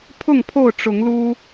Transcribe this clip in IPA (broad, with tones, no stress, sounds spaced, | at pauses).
pʰ ʊ˥˨ ŋ pʰ o˥˨ ʊ̯ ʈ͡ʂ ʊ˨˦ ŋ l u˦